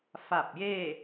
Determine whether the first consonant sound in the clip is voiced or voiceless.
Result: voiceless